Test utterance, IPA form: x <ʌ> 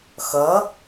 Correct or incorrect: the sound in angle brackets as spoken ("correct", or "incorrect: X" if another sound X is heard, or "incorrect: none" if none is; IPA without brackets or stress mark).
correct